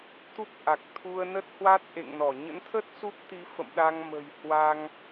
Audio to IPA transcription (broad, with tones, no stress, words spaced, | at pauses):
t̪u˦˥p̚ʔa˨˩k̚ t̪ʰu˧ə̯nə˦˥t̚ hwa˦˥t̚ ʔḛ˧˨ŋnɔ˧˩ ɲə̰˧˥nt̪ʰə˦˥t̚ su˦˥p̚t̪i˨˦fə̰˧˨m ɗa˧ŋmə̤˨˩jhwa˧ŋ